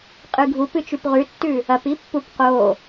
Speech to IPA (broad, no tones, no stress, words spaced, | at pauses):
qʼɨɡʱup ɨt͡ʃʉpʁʉtːʉ | ɐpipːup qo